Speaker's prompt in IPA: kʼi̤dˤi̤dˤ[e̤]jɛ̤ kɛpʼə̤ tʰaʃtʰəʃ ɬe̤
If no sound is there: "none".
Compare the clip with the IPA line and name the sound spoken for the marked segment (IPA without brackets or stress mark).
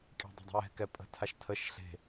i̤